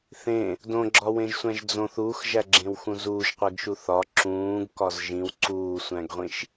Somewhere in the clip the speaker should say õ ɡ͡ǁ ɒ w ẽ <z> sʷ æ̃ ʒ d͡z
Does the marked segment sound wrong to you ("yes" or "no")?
yes